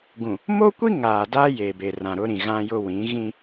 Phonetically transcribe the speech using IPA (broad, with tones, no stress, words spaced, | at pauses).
ɡũ˨ | mo˦kʷi˦ ŋaː˨da˦ je˨be˨ rã˨ɾʊ˦ ɾĩ˨ɣã˦jʊ˦ wĩ˨˦ɣĩ˦